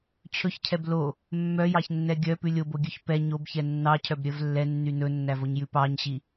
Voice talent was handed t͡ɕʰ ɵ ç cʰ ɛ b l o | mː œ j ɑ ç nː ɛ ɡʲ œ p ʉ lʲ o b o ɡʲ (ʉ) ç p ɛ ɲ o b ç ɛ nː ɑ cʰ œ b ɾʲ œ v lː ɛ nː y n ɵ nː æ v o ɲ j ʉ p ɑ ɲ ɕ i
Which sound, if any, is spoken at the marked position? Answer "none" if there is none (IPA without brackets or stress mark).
ʉ